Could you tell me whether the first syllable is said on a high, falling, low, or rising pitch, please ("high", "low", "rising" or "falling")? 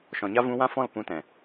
low